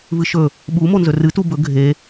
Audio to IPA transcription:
v ɨ ʃ ɵ | ɓ u m o n z ɵ r ɨ t u b ɵ ɡʱ e

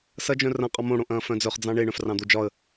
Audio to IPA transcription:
s ɐ d͡ʒ œ̃ r ɐ̃ qʼ ɔ m õ ɽ õ ʔ ɐ̃ː f œ̃ d͡z œ χ d͡z ɑ̃ ɳ e ɳ œ̃ f r ɑ̃ d̪ o d͡ʒ ɒ ə̯

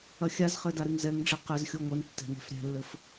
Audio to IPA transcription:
ɐ xʲ a z χ ɘ d a ɾ ɨ ŋ z ɛ ŋ ɖ͡ʐ ɘ q ɘ z xʲ o ŋʷ ɛ n tː ɛ̤ n ɛ̤ f ɾʲ ɛ̤ lː ɘ f

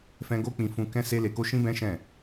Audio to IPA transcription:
f ɛ̃˦ ɡ o˦ k͡p ĩ˧ f ũ˧ k ɛ̃˦ s e˦ l e˧ k o˦ ʃ ĩ˦ b ɛ̃˦ ʃ ɛ̃˦˨

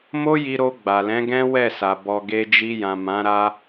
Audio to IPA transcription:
m o˦ j i˧ ɾ o˧ ɡ͡b a˨ l ɛ̃˨˦ ɡ ɛ̃˦ w ɛ˦˨ s a˨ b ɔ˨ ɡ e˧ d͡ʒ i˧ j ã˨ m ã˨˦ ɾ a˦

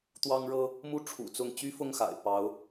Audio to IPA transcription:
t̪ w ɑ˥ ŋ ɻ ɤ˥ | m u˥˩ ʈ͡ʂʰ ṵ˨˩ t͡s ʊ˥˩ ŋ t͡ɕ y˥ f ʊ˥˩ ŋ x a̰˨˩ ɪ̯ p ɑ˧˥ ʊ̯

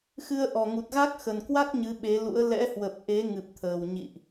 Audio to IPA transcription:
x ɨ˧ ə̯ ʔ ɔ˨˩ ŋ u˨˩ t̚ ɣ a˦˥ k̚ x ə˨˩ n k w a˦˥ k̚ ɲ ɨ˨˦ ɓ e˨˦ l ṵ˧˥ ə̯ l ɛ̰˧˥ h w ə˨˩ p̚ ʔ e˨˦ ŋ ɨ˨˩ p̚ t̪ʰ əː˨˩ w ɲ ḭ˧˨ ʔ

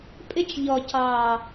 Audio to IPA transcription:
pʼ ɪ˦ t͡ʃ ʎ ɔ˨ c ɑ˨

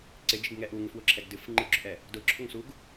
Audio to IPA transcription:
ǀ ɪ d͡ʒ ɪ ɡ ŋ ɛ ʔ u ŋ ɪ f w ʊ ǁʰ ɛ ɡ d ɨ f ŋ͡ǃ ɨ ɡ͡ǁ ʊ ʔ ɛ | d ʊ ǁʰ ʊ ŋ s u ɡ

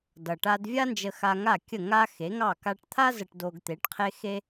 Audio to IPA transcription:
d ʌ˩ ʈ a˧ d vʲ a˥ n d͡ʒ ə˧ x a˧ ŋ a˥˩ kʲ ə˥˩ ŋ a˥ x e˩˥ ŋ ɑ˥˩ k a˧ ʈ t̪ʰ a˥ z ə˧ ʈ d o˧ ɡ t̪ e˩˥ ʈ qʰ e˥ x e˥

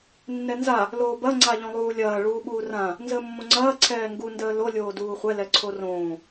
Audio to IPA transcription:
nː ɛ n z a | l oː b ɐ ŋ͡ǀ a ʎ õ lˠ uː lʲ ɐː ɭ uː ɓ uː r ã | n z əː mː õ ŋ͡ǀ ɐː ǀʰ ɛː ŋ ɡ u n d əː l o lʲ oː d uː χʷ ɛ l ɛ ǀʰ o r õː

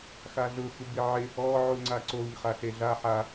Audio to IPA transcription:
x a ɮ ʊ x u b ɪ ʕ ɪ | ɔ ʕ u ŋ͡ǀ a ǀ o ɲ χ a ɬ e ɮ a ħ a

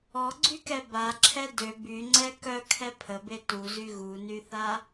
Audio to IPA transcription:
ɔ ɡ͡ǀ y k ɛ b a ǁʰ ɛ d ø b y ŋ͡ǀ ɛ k œ kʰ ɛ pʰ ə b e t u z y ɣ u n y θ a

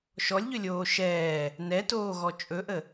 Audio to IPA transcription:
ʃ ɔ lʲ ʎ ɵ lʲ oː ʃ ɛː | n ɛ t oː ɣ ɔ t͡ʃʼ ɵ ʔ ə

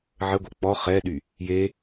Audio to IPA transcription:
ʕ ə ɡʷ œ k͡p ɔ χ ɛ ɗ y | j e

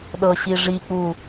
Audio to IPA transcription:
ɗ ɤ ɕ i ʐ i k͡p u

